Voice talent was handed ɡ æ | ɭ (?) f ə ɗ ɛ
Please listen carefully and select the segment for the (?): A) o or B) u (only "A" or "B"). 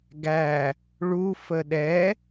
B